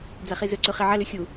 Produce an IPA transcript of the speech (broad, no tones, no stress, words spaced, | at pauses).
d͡zaχizɵǀʉ χiʕɐlʉ xʲu